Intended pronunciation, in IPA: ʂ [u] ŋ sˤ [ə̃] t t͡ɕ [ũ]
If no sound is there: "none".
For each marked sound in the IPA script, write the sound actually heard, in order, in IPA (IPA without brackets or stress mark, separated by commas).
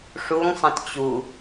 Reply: u, ə̃, u